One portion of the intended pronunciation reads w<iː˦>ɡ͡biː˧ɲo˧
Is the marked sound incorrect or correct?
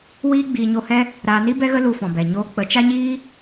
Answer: correct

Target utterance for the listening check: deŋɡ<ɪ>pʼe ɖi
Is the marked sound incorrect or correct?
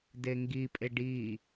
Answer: incorrect: i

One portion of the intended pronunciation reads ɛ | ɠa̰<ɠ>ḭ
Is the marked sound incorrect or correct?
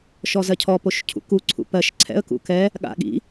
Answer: correct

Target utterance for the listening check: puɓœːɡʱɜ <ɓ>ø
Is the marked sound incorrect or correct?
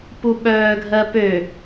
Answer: incorrect: p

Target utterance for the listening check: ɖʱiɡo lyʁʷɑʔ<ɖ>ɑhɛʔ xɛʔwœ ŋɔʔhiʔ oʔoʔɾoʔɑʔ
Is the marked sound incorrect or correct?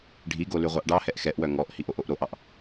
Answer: correct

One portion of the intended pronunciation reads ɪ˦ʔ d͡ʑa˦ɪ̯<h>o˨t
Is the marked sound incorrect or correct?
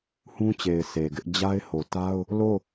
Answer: correct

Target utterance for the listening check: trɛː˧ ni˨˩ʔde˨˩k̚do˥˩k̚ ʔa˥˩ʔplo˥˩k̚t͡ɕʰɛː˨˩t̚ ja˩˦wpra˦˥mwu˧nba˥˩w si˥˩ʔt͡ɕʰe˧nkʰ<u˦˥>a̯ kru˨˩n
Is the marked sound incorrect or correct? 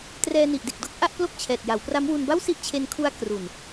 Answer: correct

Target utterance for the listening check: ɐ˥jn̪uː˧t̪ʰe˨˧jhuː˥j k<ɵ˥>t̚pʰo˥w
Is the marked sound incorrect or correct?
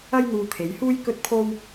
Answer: correct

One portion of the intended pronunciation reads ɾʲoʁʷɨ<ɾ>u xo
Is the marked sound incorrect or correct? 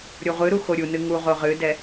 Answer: correct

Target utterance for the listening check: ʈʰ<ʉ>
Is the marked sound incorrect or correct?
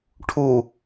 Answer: incorrect: u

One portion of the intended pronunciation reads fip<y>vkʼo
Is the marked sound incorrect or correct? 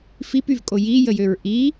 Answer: correct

